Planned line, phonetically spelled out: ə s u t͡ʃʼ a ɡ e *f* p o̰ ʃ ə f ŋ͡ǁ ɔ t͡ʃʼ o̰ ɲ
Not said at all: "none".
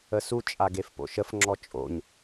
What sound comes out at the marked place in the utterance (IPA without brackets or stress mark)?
f